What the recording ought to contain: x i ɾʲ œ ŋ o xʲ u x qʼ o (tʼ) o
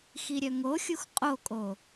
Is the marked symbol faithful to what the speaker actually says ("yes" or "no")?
no